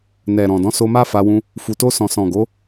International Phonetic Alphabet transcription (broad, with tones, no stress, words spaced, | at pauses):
nɛ˨ ɾɔ̃˨dɔ̃˨˦so˧ ma˦fa˧wũ˧ | fu˨to˧sɔ̃˨ sɔ̃˨ɡo˨˦